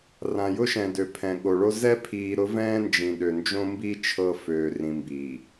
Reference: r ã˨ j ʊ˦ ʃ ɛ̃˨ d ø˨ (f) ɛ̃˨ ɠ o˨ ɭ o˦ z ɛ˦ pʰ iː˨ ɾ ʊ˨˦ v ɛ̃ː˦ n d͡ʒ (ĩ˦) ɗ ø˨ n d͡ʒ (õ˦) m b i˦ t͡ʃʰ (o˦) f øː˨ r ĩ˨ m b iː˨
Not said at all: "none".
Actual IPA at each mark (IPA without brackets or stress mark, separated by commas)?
pʰ, ĩ˨, õ˦, ɤ˦